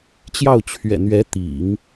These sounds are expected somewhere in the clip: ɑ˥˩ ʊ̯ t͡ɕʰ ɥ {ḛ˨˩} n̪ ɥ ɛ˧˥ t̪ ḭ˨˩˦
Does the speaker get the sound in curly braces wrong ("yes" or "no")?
yes